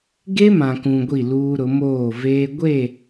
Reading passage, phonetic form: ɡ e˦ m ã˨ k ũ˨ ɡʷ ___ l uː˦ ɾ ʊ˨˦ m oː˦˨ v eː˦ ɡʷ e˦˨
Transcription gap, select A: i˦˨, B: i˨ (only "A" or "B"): A